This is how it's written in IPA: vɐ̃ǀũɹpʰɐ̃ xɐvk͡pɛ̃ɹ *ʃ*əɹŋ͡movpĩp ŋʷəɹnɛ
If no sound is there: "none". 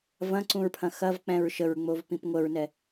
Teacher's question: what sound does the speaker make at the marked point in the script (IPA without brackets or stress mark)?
ʃ